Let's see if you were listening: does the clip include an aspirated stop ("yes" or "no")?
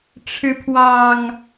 yes